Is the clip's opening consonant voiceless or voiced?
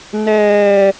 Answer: voiced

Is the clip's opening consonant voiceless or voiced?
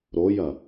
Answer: voiced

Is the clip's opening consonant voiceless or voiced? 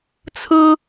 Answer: voiceless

